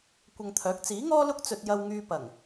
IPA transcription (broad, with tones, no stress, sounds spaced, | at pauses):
kʷ ɐ˧ ŋ t̪ʰ œː˨˥ k̚ t͡s iː˨˥ ŋ ɔː˥ l ʊ˥ k̚ t͡s ɵ˧ t̚ j ɐ˧ w ŋ yː˧ p ɐ˨˩ ŋ